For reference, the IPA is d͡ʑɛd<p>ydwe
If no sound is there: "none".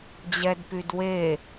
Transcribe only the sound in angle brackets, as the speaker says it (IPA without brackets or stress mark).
p